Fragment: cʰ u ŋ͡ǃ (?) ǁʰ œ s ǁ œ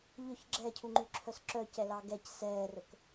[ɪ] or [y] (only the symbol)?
y